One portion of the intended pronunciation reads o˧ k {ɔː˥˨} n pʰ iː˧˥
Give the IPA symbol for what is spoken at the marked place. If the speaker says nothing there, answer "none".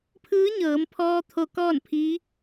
ɔː˥˨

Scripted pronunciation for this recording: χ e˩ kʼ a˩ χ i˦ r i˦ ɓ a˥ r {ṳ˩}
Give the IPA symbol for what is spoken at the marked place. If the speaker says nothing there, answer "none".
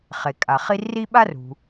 ṳ˩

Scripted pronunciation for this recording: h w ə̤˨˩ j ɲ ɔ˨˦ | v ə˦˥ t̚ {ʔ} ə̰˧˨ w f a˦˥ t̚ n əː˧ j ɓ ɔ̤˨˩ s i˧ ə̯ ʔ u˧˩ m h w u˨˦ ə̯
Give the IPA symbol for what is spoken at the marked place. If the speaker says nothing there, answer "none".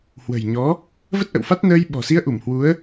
ʔ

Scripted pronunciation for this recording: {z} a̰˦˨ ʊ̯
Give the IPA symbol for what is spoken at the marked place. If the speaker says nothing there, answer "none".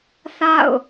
θ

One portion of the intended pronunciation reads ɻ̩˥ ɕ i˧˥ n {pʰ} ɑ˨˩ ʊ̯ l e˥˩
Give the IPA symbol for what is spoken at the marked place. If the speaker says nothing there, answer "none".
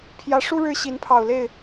pʰ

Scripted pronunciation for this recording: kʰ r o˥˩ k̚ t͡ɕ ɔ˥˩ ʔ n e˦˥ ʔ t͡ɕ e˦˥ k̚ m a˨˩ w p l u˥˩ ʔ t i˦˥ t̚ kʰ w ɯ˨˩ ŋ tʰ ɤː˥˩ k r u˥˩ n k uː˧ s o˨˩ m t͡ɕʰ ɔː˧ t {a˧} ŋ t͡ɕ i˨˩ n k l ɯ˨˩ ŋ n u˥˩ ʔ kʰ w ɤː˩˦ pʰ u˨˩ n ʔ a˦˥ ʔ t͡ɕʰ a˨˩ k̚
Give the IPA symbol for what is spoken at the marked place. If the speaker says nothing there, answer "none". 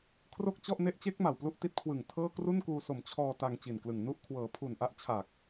a˧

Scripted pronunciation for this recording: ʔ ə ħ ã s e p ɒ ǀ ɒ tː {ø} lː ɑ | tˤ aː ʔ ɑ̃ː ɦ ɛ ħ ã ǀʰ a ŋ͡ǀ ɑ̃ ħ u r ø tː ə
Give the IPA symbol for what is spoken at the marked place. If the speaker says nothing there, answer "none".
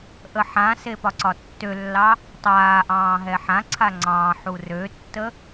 ø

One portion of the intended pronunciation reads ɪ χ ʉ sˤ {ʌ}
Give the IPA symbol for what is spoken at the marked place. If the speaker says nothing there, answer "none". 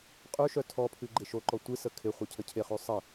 ə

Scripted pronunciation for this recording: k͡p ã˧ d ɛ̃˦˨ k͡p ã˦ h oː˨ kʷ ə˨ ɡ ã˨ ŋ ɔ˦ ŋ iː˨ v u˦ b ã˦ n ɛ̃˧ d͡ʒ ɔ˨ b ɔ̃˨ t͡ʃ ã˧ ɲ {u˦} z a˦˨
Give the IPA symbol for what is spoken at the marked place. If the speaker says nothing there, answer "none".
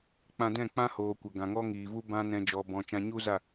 u˦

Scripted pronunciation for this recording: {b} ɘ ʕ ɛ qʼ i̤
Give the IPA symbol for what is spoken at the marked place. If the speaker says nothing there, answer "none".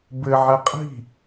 b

